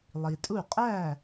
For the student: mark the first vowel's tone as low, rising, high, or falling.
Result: low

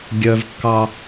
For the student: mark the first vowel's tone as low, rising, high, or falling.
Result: high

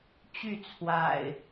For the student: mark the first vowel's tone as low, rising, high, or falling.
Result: falling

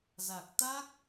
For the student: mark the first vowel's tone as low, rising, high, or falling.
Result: low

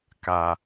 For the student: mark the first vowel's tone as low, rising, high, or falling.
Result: low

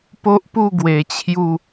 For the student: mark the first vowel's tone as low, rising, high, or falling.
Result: high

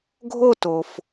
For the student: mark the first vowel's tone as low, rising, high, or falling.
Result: falling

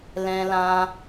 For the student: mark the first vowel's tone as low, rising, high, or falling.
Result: high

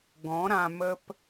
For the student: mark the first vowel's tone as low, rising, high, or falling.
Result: rising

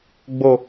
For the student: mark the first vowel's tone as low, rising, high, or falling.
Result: high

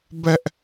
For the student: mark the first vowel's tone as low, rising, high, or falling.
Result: high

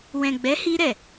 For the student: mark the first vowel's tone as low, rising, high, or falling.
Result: low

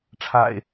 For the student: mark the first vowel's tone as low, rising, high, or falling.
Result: low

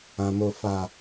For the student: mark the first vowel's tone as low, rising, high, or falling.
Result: low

